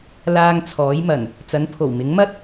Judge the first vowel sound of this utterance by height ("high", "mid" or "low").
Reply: low